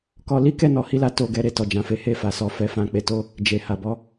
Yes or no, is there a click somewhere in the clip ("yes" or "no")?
no